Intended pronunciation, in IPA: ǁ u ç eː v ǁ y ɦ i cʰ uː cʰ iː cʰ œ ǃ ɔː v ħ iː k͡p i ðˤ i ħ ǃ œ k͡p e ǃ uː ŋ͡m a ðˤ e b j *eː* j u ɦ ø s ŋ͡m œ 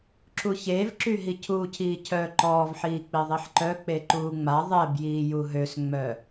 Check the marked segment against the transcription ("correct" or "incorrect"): incorrect